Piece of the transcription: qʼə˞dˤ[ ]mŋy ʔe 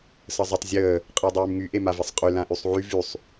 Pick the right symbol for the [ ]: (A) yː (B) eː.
A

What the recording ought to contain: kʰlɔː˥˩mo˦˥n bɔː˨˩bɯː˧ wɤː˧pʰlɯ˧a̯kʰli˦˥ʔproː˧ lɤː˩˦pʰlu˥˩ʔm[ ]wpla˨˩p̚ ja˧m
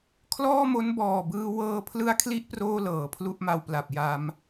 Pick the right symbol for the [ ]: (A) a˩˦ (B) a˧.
B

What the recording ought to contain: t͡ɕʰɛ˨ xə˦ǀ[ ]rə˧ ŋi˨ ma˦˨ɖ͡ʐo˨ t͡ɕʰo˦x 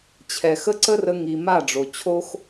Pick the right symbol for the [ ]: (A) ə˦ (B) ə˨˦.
A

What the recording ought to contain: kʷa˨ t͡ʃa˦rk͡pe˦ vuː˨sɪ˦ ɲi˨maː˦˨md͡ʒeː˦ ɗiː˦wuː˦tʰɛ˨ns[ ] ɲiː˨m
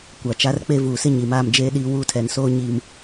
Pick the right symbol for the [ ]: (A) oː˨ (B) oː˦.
B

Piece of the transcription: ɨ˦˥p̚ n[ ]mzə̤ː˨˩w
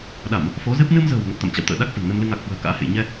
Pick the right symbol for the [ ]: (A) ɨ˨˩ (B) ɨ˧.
B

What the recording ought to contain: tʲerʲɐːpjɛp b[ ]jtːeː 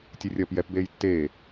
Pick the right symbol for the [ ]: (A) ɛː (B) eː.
B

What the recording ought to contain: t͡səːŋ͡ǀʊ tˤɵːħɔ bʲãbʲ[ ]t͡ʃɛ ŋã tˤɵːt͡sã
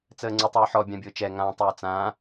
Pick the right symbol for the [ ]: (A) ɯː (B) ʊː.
B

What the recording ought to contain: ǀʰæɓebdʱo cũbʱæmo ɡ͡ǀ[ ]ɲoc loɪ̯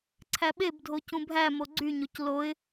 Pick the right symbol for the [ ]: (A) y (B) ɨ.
A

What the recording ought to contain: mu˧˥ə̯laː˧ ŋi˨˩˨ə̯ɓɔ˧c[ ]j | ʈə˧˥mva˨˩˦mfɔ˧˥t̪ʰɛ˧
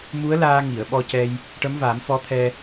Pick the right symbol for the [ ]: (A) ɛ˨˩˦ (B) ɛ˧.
B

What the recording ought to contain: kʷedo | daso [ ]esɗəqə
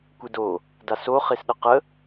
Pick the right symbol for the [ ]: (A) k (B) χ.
B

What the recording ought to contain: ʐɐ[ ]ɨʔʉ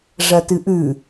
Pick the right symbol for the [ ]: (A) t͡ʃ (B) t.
B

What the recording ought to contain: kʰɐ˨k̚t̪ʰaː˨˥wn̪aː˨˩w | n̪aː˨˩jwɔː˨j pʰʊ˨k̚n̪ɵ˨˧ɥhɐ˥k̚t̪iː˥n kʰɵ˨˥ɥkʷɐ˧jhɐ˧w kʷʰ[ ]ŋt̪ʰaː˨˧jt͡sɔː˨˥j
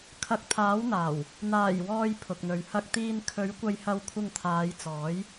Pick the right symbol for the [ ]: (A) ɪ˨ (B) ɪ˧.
B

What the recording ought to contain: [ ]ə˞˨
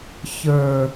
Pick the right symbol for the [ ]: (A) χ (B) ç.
B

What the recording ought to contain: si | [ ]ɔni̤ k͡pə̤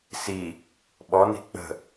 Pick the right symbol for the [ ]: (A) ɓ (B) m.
A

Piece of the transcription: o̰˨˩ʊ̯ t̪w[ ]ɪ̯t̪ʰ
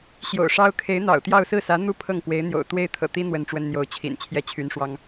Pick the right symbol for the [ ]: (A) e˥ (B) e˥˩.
B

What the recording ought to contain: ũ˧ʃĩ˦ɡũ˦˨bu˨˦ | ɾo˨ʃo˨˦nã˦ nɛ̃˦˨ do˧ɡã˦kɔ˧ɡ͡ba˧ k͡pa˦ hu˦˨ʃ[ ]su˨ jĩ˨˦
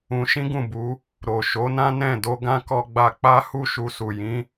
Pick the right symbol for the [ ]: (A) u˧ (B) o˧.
A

